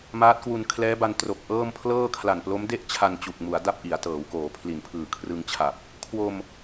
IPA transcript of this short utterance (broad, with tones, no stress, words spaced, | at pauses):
maː˦˥t̚kwu˧n kʰlɛː˦˥ba˧n tro˨˩k̚ʔɤː˥˩m pʰlɤː˥˩kʰla˨˩n plo˦˥mde˥˩ʔt͡ɕʰa˧n t͡ɕu˨˩k̚mu˩˦a̯ da˥˩p̚ʔi˩˦a̯tɤː˩˦wkoː˩˦ pʰli˨˩npʰɯː˨˩kʰrɯ˧ŋt͡ɕʰa˨˩p̚ | kʰwo˧m